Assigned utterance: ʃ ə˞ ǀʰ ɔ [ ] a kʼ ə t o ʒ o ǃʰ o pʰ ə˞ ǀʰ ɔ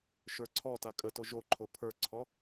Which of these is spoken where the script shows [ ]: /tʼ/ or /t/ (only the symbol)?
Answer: t